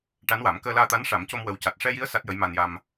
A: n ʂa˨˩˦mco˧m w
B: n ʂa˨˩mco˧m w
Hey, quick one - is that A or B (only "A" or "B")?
A